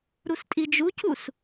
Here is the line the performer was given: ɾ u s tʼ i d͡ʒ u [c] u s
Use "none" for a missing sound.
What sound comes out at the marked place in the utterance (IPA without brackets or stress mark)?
c